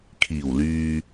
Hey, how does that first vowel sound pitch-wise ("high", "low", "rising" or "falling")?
low